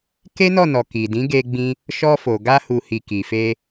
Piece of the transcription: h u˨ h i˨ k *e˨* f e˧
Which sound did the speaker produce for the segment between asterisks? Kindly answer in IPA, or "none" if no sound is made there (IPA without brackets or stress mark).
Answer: i˨